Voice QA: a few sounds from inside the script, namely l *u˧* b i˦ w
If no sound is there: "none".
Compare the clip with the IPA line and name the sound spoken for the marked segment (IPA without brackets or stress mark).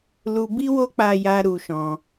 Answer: u˧